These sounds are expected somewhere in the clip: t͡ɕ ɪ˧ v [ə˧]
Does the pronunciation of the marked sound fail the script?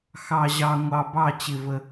no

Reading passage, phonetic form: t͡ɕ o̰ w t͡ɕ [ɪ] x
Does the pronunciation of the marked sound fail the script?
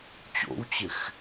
no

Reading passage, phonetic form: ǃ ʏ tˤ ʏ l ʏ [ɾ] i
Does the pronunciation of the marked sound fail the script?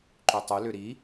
no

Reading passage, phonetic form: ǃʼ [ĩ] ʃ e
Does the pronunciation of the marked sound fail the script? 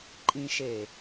no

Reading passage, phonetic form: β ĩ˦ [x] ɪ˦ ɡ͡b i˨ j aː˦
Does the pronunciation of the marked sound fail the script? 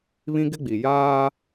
yes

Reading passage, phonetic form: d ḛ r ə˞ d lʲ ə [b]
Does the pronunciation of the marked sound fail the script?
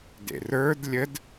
yes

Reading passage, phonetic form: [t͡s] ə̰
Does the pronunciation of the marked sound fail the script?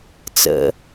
no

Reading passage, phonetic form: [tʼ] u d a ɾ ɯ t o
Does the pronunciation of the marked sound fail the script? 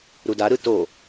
yes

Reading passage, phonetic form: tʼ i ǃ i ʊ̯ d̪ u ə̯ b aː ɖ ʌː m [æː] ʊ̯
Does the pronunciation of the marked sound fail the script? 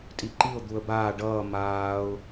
yes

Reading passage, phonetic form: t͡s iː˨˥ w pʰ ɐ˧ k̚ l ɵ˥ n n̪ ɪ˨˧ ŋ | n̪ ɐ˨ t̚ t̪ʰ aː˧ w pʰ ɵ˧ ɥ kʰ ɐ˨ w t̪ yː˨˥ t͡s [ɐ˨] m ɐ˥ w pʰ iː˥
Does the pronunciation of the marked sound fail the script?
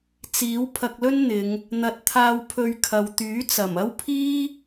yes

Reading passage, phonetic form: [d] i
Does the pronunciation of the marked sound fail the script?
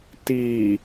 yes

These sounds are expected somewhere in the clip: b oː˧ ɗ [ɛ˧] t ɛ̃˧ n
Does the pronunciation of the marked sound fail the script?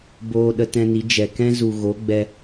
yes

